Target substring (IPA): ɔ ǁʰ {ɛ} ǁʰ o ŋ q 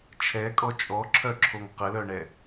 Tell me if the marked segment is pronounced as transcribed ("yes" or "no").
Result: no